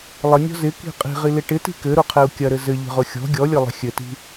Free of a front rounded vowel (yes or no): yes